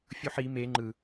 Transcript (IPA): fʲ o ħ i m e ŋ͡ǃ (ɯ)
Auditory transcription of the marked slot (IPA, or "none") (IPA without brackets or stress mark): ɯ